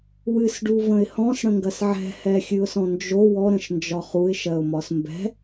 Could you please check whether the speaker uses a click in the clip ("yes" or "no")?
no